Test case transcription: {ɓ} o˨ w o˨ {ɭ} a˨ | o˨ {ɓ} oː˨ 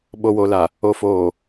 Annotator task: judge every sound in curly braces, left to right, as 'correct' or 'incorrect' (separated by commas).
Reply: correct, incorrect, incorrect